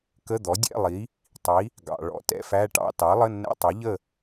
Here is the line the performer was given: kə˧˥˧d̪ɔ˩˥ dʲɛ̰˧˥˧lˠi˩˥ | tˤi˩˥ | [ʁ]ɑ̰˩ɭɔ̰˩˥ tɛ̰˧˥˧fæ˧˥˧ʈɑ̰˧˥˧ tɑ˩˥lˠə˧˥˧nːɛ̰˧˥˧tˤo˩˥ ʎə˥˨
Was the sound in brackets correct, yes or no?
no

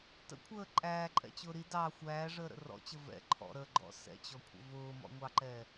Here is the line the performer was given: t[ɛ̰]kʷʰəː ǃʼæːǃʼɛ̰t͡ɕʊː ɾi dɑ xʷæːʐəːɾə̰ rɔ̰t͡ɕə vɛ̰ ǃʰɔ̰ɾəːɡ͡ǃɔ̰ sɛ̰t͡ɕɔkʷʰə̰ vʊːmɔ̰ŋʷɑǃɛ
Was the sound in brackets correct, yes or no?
no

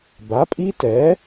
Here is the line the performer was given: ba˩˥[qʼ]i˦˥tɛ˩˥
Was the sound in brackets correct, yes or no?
no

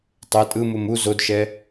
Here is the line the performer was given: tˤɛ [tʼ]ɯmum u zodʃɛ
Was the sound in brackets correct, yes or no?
yes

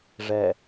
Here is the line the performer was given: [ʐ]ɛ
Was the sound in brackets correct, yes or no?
yes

